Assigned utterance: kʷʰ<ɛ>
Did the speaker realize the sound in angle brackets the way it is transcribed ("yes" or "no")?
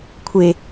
no